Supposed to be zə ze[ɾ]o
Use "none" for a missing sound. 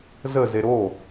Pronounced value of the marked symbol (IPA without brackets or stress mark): ɾ